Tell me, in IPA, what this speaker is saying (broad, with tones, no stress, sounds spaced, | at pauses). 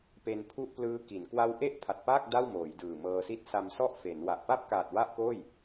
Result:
p e˧ n pʰ u˥˩ ʔ p l ɯː˦˥ k i˩˦ n k w a˦˥ w ʔ e˥˩ ʔ pʰ a˨˩ t̚ p aː˥˩ k̚ d a˥˩ w m oː˩˦ j d ɯː˨˩ m ɤː˧ s i˥˩ t̚ s a˧ m s ɔ˥˩ ʔ f e˩˦ n w a˨˩ ʔ p a˥˩ p̚ k aː˨˩ t̚ w a˥˩ ʔ k oː˥˩ j